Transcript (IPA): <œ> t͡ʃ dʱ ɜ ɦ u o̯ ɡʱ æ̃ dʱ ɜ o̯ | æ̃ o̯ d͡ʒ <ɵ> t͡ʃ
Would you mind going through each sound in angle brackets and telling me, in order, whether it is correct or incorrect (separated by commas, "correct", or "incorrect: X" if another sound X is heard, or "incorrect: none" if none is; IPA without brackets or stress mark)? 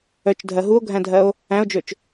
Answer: correct, correct